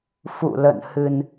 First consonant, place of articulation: labial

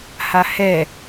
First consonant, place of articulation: glottal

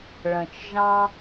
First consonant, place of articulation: retroflex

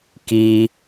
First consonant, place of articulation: velar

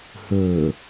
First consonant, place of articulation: glottal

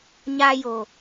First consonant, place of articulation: palatal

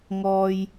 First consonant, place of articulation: velar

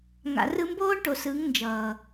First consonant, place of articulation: velar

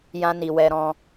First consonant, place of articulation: palatal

